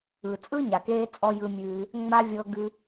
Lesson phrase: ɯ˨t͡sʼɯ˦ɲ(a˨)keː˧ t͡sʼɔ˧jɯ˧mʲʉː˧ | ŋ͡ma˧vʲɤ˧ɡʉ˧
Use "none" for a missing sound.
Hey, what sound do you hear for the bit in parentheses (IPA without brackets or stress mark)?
a˨